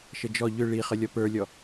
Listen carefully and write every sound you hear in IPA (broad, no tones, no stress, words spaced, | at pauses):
ʃəd͡ʒɔ ʎʏ ɭiχə lʲɔpə˞lʲɔ